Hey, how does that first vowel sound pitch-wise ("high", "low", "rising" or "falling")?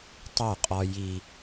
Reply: falling